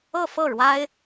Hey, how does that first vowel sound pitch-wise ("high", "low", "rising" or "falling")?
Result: falling